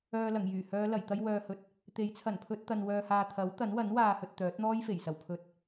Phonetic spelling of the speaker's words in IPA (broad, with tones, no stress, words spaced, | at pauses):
œː˨lɐ˨˩ŋjyː˨˩ hœː˨˧lɐ˨˩jt̪ɐ˧j wœː˨hɵ˨t̚ | t̪e˨˥jt͡sʰɐ˨˩npʰɵ˧t̚t̪ɐ˨n wœː˨haː˨ t̪ʰɐ˨˥wt̪ɐ˨˥nwɐ˨˥n waː˨hɵ˨t̚ t̪œː˨˥t̚n̪ɔː˥jfe˨˩j sɐ˨˩wpʰɵ˨˥t̚